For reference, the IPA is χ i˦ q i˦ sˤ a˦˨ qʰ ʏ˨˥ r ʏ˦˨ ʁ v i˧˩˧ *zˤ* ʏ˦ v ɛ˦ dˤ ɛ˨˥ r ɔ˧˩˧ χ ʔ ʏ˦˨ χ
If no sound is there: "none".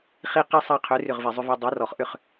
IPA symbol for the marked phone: zˤ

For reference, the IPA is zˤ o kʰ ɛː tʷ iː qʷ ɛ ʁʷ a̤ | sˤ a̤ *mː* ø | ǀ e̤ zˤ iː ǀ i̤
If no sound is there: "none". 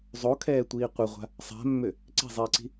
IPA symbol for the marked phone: mː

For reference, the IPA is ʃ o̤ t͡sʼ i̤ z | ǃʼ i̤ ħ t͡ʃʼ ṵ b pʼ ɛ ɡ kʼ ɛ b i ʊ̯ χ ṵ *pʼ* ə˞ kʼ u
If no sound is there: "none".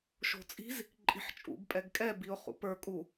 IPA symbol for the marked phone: p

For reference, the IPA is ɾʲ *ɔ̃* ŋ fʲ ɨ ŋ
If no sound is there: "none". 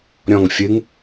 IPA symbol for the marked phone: ɔ̃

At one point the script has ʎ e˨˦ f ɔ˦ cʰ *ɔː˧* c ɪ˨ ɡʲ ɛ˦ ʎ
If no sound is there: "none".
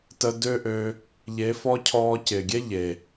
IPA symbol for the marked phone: ɔː˧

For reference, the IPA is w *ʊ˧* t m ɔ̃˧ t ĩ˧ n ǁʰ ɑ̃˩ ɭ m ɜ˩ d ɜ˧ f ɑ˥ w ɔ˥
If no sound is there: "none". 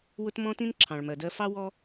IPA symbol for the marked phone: ʊ˧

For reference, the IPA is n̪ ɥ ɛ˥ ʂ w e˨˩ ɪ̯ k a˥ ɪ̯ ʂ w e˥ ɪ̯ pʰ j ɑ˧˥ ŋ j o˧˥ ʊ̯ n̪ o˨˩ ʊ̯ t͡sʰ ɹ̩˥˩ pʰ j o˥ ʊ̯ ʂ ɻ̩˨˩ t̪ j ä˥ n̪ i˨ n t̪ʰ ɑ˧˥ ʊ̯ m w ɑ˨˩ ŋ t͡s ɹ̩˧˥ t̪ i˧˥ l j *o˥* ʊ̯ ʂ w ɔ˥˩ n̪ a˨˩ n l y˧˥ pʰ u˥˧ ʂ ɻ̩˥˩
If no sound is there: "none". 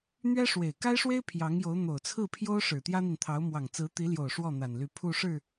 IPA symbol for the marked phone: o˨˩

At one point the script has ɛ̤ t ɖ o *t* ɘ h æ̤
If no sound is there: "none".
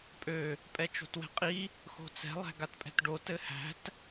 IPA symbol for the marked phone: t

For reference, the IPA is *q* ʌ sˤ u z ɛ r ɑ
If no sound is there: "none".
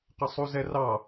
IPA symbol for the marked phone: q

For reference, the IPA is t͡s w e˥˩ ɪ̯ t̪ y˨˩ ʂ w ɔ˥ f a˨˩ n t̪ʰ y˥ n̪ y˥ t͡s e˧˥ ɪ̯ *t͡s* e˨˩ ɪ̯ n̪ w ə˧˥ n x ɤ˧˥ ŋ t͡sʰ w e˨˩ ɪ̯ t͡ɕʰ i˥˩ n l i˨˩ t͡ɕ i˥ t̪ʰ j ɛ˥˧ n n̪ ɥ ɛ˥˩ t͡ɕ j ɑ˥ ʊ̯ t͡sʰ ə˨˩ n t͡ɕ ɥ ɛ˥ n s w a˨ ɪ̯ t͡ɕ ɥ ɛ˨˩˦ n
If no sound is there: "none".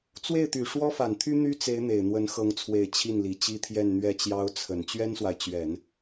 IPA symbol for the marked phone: n̪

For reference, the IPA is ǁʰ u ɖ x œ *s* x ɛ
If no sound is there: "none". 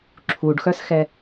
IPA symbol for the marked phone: s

